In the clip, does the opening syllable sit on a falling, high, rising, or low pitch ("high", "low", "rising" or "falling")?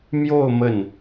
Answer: falling